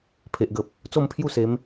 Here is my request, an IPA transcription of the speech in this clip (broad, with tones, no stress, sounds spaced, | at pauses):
pʰ e˨ ʔ ɡ ə˨ p̚ | t͡s o˥˧ m pʰ j u˥˧ s e˨˦ m